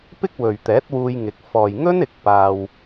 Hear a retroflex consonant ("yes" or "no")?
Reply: no